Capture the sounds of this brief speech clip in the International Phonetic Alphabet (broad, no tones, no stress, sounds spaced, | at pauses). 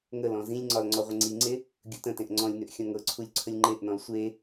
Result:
ŋ ə l ɔ̃ z ĩ lʲ ŋ͡ǀ ɒ l ŋ͡ǀ ɔ ʁʷ ə ŋ͡ǀ i ŋ͡ǀ e | ɡʲ u t ə̃ t ẽ ʔ ŋ͡ǀ ɔ̃ lʲ n ʏ ʔ xʲ ɔ̃ ŋ ɤ ǀʰ u lʲ ǀʰ ə lʲ ŋ͡ǃ e ʔ n ɔ̃ l sʷ e